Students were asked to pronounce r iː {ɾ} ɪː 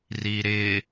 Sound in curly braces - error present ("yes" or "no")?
no